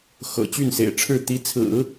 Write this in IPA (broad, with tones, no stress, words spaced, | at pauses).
xɤ̰˨˩ t͡ɕy˥˩nsḛ˨˩ɪ̯ʈ͡ʂʰɻ̩˥˩ t̪i˧˥t͡sʰɹ̩˨˩˦